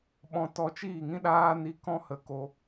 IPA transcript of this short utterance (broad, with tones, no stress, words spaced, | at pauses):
ɓɔ̃˧ tɔ˧t͡ʃiː˦˨ŋĩ˦ ɗaː˦ni˧ kɔ̃˦hə˧ ko˧